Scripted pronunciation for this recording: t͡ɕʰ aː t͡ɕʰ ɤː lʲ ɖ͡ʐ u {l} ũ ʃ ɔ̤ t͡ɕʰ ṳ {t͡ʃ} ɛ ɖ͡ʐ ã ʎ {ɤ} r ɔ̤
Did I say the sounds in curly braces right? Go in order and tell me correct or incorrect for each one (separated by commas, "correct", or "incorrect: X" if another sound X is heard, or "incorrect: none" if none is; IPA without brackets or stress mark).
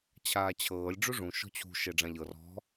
incorrect: ʐ, incorrect: ʃ, correct